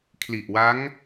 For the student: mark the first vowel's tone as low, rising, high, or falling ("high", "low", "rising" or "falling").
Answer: low